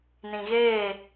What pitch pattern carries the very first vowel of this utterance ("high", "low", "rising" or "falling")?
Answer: low